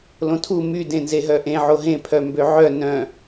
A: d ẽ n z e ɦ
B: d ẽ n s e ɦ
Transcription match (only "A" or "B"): A